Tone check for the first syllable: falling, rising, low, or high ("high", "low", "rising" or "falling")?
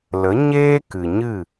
rising